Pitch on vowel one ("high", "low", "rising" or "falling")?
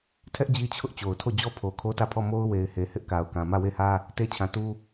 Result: high